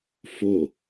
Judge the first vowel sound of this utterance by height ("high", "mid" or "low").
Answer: mid